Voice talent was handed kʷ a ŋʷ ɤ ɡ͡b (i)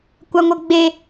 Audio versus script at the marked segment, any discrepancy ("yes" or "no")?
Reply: yes